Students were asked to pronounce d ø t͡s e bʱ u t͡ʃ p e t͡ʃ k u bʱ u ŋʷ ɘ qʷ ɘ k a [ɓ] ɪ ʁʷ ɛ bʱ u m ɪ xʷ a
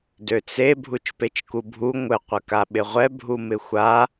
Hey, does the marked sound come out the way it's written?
yes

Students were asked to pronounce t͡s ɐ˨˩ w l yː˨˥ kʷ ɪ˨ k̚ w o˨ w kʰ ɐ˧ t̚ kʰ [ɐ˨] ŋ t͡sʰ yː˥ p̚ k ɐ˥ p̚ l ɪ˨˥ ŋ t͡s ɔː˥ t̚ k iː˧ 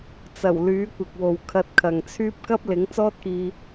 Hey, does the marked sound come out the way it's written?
yes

